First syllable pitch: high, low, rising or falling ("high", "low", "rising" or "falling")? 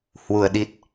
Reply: low